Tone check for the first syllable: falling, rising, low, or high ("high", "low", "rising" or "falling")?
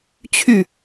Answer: falling